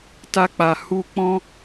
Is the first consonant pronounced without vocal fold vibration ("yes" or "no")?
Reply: yes